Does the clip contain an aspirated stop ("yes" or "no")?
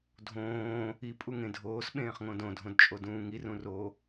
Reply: no